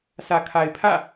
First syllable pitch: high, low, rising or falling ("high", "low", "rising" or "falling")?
low